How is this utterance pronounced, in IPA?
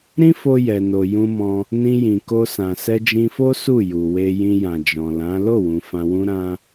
ɾ ĩ˦ f o˧ j ɛ˨ n o˨ j ũ˧ m ɔ̃˧ | n ĩ˧ j ĩ˨ k o˧ s ã˨ s ɛ˧ d͡ʒ ĩ˧ f o˦ s u˦˨ j u˨ w e˧ j ĩ˧ j ã˨ d͡ʒ ɔ̃˨ l ã˨˦ l o˦˨ w ũ˨ f ã˨ w ũ˧ ɾ ã˧

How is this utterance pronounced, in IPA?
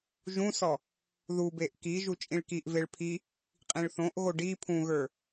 ʒ ũ s ɔ | ð u b e ʔ k i ʒ u t͡ʃʼ ĩ ɭ k i ʔ v e ɭ pʰ i | qʼ ĩ ɭ θ õ ʔ ɣ o ɖ i pʰ ũ ɣ ə˞

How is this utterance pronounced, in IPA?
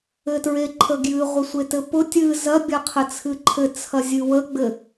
ɘ t ɹ e ǃʰ ə ɡ j ɨ ʁʷ ə sʷ e t ɘ p ʊ tʲ ɨ z ɐ bʲ ɐ qʰ ɘ t͡sʰ ɨ ǃʰ ɘ t͡sʰ ɐ zʲ ɨ w ə ɡ͡b ɘ

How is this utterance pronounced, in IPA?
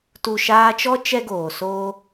t u˨ ʃ aː˧ t͡ʃ ɔ˦ t͡ʃ ɛ˦ ɡ oː˨ s oː˦

